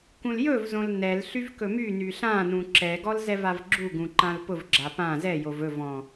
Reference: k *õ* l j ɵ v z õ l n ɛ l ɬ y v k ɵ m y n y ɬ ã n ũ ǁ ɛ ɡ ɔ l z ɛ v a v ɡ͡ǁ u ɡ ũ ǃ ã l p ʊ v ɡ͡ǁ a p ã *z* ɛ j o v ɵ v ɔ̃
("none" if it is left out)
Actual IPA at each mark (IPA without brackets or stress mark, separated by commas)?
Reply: ũ, z